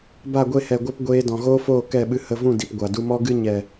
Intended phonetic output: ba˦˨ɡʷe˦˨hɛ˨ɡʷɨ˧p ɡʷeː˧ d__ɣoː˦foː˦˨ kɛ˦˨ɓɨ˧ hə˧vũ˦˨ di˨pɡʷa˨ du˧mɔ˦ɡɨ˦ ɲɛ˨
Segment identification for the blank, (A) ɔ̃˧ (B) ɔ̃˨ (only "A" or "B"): B